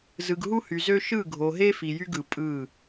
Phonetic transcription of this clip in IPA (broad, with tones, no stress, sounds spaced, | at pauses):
z ɯ˨ ɡ ɦ u˦ h y˨ z ø˦ ʃ ɯ˦˨ ɡʱ o˨ ɦ e˦ f i˨ j y˦ ɡ ɯ˨ pʼ ɯ˦˨